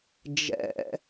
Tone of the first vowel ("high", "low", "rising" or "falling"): low